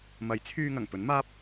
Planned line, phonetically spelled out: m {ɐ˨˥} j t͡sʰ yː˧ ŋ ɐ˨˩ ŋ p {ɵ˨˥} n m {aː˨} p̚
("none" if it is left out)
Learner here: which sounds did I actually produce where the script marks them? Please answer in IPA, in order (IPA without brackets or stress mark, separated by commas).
ɐ˨˥, ɵ˨˥, aː˥